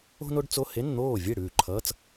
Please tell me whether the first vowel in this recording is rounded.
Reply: yes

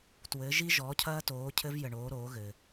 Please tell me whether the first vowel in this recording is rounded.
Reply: no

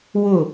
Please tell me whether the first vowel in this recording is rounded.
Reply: yes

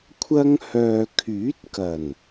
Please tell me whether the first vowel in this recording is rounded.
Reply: no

